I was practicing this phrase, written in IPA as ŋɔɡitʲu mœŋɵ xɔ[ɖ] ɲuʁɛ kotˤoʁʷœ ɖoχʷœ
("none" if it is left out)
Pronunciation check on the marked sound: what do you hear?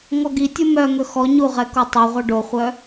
none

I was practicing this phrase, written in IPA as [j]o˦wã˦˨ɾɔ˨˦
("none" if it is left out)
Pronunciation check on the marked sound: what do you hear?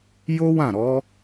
j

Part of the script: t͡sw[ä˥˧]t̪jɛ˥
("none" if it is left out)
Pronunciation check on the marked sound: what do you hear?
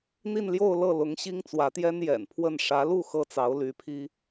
ä˧˥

